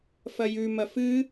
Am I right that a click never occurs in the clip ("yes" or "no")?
yes